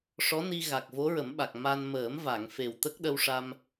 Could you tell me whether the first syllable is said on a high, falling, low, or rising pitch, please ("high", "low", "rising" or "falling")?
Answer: rising